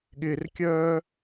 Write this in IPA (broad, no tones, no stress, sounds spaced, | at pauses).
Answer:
ɠ ɪ r kʲ œ